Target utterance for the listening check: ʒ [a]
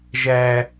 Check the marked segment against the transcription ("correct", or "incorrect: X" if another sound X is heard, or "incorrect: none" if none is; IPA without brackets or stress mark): incorrect: æ